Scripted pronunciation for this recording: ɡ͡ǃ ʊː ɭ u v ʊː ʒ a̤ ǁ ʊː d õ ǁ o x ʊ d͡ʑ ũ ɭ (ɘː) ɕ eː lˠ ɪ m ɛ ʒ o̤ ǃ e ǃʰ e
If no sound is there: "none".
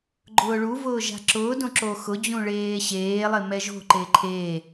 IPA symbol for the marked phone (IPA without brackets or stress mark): eː